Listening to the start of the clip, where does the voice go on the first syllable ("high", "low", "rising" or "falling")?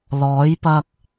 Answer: rising